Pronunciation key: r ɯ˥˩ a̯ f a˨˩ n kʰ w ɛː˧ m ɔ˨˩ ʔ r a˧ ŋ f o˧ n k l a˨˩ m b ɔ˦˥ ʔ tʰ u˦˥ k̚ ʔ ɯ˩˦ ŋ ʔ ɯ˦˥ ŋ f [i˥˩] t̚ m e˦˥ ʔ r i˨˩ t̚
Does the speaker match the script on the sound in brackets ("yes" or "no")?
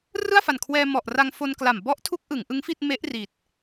yes